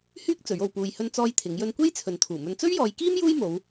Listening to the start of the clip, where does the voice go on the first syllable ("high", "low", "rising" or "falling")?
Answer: high